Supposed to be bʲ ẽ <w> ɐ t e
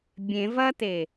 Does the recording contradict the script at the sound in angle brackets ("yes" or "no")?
yes